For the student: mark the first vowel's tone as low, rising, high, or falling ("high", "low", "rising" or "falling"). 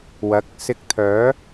rising